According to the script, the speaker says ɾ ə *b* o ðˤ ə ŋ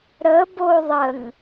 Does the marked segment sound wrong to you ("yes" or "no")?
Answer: no